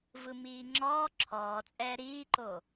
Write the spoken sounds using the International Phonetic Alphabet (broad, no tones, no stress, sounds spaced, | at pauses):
v ɯ m iː ŋ͡ǁ ɔː ǁʰ ɔː t͡sʼ ɛː ɾ iː ǃ o